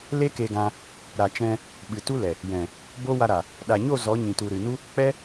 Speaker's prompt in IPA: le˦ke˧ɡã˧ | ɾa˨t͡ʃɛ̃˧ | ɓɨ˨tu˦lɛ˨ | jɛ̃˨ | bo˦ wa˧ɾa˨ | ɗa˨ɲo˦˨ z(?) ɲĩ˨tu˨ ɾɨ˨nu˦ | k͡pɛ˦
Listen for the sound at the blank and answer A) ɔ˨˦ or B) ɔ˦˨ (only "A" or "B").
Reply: A